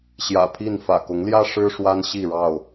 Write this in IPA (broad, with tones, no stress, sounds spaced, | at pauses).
ɕ j ä̰˨˩ pʰ i˥˨ n f ä̰˨˩ k ʊ˨˦ ŋ l j ä˦ ʂ ɻ̩˦ ʂ w a˦ n ɕ i˥˨ ɻ ɑ˥˨ ʊ̯